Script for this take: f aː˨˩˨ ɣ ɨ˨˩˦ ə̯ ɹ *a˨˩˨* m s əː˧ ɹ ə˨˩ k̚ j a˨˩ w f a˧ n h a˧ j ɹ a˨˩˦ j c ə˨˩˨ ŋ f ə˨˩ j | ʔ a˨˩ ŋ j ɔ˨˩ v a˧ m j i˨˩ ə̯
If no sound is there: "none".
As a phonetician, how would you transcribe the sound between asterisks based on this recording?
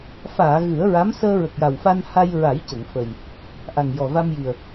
a˧˥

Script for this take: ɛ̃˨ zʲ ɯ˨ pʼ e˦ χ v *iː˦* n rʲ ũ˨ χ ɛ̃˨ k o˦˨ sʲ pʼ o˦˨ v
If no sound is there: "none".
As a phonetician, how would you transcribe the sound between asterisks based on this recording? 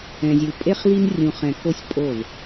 i˦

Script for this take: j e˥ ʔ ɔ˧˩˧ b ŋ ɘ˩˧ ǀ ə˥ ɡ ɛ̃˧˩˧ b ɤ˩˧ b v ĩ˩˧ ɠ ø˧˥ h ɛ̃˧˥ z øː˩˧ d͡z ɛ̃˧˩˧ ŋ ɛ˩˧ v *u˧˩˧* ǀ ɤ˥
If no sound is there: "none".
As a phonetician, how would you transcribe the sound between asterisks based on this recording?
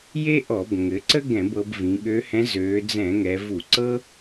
u˧˩˧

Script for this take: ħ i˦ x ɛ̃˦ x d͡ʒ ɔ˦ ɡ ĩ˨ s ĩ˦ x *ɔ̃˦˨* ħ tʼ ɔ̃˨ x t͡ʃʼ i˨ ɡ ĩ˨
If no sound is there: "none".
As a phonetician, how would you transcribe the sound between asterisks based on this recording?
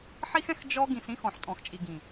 ɔ̃˨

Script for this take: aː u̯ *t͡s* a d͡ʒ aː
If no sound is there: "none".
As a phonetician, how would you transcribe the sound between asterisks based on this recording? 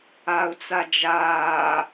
t͡s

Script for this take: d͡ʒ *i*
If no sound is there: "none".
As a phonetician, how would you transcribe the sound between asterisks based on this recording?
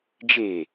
e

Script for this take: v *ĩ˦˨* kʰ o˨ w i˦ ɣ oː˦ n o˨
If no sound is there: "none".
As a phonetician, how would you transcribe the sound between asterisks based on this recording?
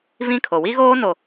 ĩ˦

